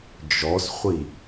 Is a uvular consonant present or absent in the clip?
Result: present